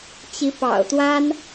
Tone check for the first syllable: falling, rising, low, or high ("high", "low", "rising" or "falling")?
rising